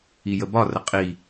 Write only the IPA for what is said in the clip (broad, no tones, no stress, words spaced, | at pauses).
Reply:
ijəbɒrə qʼi